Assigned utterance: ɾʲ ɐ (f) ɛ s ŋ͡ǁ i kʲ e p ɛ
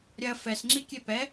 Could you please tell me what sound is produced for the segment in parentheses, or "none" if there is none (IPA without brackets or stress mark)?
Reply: f